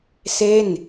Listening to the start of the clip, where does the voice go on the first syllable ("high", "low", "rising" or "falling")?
falling